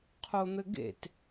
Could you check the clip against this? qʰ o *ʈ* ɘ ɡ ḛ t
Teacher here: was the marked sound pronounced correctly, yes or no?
no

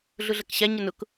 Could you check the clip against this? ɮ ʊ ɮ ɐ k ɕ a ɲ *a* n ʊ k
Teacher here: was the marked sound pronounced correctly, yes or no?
no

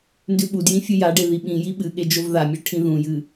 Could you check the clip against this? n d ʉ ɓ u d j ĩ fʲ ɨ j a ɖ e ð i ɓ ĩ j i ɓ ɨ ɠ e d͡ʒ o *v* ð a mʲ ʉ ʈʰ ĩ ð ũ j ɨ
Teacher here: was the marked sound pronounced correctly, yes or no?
yes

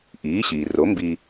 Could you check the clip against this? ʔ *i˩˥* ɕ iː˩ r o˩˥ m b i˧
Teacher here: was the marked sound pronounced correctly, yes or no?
no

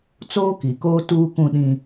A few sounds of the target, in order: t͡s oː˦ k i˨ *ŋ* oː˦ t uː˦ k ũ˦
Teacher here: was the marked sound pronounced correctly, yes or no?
no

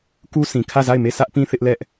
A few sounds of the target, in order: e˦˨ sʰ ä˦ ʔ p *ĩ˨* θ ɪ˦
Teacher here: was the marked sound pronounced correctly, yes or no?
no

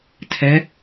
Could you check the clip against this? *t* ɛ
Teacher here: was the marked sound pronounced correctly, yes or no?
no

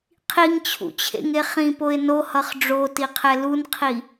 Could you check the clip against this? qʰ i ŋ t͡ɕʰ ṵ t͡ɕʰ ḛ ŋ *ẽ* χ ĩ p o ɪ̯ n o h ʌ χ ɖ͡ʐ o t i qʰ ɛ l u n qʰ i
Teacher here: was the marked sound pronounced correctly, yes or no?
no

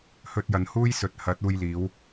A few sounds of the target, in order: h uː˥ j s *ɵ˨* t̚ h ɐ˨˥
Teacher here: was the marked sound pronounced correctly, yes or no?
yes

